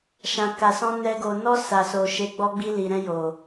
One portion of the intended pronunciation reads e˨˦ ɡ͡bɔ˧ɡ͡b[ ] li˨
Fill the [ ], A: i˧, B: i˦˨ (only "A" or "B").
A